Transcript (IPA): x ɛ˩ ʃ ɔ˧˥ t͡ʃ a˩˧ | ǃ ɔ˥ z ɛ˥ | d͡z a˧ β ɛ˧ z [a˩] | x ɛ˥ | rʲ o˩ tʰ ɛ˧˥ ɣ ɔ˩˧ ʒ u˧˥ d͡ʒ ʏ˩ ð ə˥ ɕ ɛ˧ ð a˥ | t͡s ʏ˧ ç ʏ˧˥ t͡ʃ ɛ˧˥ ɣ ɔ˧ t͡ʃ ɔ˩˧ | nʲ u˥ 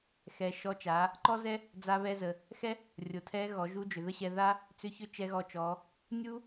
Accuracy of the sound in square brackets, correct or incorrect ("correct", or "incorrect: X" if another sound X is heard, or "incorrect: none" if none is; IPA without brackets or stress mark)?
incorrect: ə˩